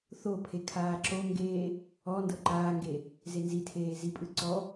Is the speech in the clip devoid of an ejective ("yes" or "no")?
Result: no